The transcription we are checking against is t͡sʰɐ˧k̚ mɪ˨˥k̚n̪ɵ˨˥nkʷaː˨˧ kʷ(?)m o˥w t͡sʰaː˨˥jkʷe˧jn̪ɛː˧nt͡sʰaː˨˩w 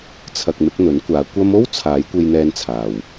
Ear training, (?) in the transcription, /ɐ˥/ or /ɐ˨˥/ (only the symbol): ɐ˥